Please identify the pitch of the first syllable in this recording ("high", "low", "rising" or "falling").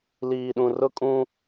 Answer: low